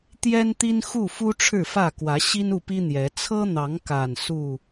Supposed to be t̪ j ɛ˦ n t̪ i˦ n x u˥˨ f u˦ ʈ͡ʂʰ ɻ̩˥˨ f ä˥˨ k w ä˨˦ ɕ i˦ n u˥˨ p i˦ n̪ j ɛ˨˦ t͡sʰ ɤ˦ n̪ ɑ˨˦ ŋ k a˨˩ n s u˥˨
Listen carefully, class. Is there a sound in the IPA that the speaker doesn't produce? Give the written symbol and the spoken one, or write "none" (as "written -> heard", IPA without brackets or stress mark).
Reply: none